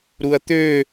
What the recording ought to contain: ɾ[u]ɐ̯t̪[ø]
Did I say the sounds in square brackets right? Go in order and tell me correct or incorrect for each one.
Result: correct, correct

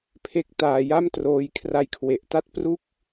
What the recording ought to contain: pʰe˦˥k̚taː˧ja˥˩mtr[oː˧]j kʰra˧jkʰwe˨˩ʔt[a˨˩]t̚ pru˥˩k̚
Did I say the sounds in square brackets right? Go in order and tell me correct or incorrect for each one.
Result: correct, incorrect: a˥˩

